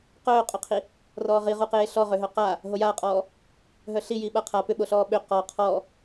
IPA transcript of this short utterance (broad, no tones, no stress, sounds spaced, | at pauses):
q œː qʼ œ qʰ i | r ɔː ʁ i ʁ u q eː ɬ ɔ ʁ ʏ ɦ œ q a | ɦ o j aː qʼ ɔː | ɦ œ ɬ i j i ɓ a qʰ a p ʏ ɓ o ɬ ɔː ɓ ʏ q ɔ qʰ ɔ